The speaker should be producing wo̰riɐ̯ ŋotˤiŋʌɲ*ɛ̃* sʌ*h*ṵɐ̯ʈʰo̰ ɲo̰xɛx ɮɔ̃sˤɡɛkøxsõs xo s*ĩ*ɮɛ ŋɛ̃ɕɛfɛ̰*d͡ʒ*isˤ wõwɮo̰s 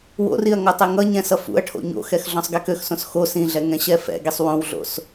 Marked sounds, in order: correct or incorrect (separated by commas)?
correct, incorrect, correct, incorrect